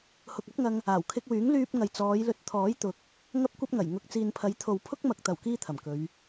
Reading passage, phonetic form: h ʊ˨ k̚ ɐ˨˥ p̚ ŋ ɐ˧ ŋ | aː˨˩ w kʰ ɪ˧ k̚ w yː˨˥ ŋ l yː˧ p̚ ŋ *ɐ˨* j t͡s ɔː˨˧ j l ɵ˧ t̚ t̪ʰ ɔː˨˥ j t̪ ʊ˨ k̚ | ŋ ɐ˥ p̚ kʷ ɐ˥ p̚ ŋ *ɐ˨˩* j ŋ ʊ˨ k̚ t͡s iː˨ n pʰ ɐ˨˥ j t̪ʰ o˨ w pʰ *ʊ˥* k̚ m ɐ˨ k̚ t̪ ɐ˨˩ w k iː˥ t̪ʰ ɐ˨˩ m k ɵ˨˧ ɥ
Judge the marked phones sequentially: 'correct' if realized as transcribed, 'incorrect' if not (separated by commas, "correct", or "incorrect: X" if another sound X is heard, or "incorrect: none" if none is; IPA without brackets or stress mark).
correct, correct, correct